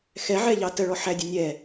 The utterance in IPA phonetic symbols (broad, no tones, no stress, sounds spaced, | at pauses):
x ɛ ʕ ɛ ʎ ɑ t ə ɭ ɔ ħ æ dʲ ə nʲ ɛ